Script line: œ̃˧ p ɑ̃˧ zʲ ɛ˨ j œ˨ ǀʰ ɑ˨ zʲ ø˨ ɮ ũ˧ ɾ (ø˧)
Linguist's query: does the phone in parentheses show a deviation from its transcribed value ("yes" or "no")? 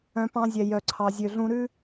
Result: yes